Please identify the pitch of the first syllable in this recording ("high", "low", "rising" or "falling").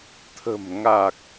low